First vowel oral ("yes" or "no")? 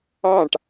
no